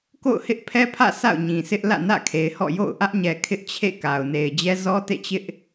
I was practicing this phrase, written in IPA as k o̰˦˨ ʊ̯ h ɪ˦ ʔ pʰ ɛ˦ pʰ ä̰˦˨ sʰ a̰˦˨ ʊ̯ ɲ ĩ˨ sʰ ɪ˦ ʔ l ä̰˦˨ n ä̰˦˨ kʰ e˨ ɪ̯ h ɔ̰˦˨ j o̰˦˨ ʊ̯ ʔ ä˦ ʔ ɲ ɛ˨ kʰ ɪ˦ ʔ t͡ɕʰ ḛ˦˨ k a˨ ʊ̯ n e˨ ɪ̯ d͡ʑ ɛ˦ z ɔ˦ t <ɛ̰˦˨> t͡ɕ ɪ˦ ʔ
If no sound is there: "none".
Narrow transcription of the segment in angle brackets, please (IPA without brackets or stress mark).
ḛ˦˨